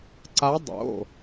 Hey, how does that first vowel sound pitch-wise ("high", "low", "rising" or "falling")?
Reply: rising